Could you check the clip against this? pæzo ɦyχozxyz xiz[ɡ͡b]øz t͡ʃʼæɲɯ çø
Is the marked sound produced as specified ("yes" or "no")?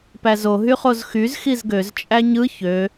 no